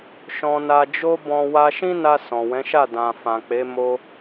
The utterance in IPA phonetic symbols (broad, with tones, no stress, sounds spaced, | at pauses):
ʃ ɔ̃˧ n a˧ d͡ʒ o˦ b ɔ̃˧ w a˧ ʃ ĩ˦ n a˧ s ɔ̃˨ w ɛ̃˨˦ ʃ a˦˨ d ã˨ f ã˨ k͡p e˨˦ m o˧